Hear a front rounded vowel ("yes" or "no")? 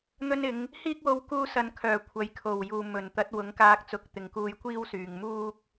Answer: yes